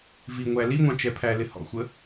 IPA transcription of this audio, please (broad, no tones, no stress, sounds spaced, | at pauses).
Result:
v i ŋʷ æ l i ŋʷ ɑ̃ t͡ʃ ɛ pʰ æ l ɪ h ɔ̰ xʷ ə